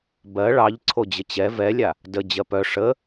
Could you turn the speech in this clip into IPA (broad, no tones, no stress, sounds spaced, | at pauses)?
b ɜ ɭ ɑ ʎ ǀʰ o d͡ʑ ə t͡ɕ ɛ v ɛ lʲ a | d ə d͡ʑ ɜ p œ ʂ ə